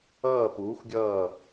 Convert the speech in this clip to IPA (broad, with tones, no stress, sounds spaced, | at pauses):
ʌː˦˨ p uː˨˥ xʷ ɡʲ ʌː˦˨